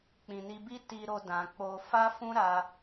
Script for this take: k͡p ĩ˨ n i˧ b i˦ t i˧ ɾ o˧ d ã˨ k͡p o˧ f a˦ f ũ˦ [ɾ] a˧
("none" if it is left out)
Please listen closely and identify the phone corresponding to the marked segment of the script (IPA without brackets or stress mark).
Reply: ɾ